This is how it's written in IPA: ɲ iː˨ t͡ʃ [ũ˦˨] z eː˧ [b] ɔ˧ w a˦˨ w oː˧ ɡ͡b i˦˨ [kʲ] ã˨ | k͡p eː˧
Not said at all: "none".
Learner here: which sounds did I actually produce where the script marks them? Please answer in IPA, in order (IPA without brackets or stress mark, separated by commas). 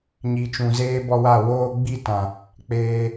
ũ˨, b, t